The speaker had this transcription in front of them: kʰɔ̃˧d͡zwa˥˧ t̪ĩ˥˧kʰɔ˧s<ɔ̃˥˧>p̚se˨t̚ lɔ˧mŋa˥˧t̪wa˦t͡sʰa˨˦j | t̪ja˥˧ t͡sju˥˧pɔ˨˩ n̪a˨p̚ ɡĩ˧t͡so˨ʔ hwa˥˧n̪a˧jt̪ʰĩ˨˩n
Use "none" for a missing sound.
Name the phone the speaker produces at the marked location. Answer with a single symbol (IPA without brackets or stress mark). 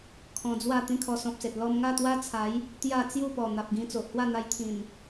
ɔ̃˨